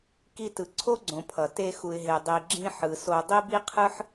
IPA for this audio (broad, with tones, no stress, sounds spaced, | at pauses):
k i˧ t ɯ˨ ǀʰ o˦ ɡ͡ǀ õ˨ pʰ ʌ˨ t e˧ x u˨ ɪ̯ ɦ e˨ dˤ i˨ ɡ͡ǁ ĩ˧ ħ ɯ˨ s o˧ dˤ i˦ b i˦ qʰ ɯ˦ ħ